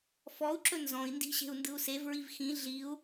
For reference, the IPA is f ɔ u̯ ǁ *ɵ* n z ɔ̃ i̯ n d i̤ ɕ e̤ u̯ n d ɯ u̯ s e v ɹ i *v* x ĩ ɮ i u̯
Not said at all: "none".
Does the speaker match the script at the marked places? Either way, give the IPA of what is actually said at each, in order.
ɵ, v

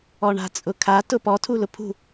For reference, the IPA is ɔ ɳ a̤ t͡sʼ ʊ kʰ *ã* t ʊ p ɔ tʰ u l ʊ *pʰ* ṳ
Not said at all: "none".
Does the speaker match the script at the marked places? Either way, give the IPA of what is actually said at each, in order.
a, pʰ

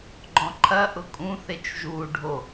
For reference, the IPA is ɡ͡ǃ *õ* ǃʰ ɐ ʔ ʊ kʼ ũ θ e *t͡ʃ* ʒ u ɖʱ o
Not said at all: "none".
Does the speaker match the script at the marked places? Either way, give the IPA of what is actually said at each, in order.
ɔ̃, t͡ʃ

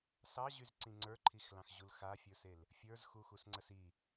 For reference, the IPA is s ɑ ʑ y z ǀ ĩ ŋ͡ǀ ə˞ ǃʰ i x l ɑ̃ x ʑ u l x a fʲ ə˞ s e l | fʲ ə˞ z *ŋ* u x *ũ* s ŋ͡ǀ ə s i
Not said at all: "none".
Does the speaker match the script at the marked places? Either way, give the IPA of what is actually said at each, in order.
x, u

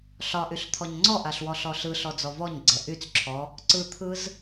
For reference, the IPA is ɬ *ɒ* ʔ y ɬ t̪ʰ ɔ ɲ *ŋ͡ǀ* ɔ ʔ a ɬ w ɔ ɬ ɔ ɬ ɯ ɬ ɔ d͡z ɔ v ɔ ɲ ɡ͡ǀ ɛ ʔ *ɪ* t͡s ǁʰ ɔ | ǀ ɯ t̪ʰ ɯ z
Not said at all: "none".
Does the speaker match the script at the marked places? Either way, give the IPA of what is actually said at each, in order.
ɒ, ŋ͡ǀ, y

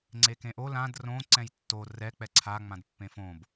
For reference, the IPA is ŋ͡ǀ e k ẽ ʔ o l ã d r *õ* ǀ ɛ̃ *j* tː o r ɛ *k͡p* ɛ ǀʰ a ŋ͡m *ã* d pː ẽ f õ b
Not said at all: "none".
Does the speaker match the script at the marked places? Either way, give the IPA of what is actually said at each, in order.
õ, j, k͡p, ã

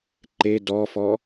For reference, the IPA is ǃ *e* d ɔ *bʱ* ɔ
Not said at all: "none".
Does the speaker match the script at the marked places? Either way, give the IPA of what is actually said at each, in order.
e, f

